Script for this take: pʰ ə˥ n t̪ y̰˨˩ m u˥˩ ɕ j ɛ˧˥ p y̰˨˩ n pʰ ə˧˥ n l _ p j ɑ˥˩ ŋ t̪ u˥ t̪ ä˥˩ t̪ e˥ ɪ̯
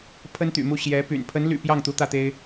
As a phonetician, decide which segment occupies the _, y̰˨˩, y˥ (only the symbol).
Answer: y̰˨˩